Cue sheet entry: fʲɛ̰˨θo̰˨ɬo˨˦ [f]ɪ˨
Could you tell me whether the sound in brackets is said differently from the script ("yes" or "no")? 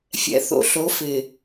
no